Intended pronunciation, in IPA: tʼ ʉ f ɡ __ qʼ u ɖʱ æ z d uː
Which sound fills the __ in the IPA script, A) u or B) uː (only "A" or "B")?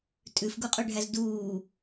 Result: A